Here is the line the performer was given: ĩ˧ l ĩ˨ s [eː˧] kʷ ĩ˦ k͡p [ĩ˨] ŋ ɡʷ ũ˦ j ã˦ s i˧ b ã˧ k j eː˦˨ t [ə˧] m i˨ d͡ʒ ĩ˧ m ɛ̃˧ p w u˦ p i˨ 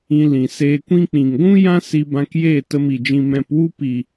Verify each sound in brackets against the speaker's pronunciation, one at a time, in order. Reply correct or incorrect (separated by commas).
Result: correct, correct, correct